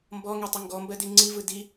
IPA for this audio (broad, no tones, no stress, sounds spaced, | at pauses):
m b ɔ ŋ e tˤ ʊ ŋ ɡ ɔ m b ɜ d i ŋ͡ǀ i v ɯ d i